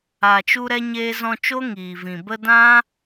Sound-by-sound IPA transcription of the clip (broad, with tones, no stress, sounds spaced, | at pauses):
a˨ t͡ʃ u˧ ɾ ɛ˧ ɲ eː˧ z ɔ̃˧ t͡ʃ o˦ ŋ iː˨ v ĩ˨ b ə˧ d ã˦